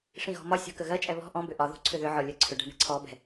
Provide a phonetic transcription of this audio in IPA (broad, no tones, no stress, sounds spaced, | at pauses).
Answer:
ʂ ĩ ɣ ɔ̤ m ɒ sʲ ɔ̤ k ə ɣ ɜ t͡ʃʼ ɛ β ɔ̤ ʔ ɔ̃ b ʏ ʔ ɒ ð o̤ ǀʰ ʏ ð ʏ ʕ ɔ lʲ ɜ ǀʰ ʏ ɖ ɛ̤ ɳ ɛ̤ ǀʰ ɔ b ɛ̤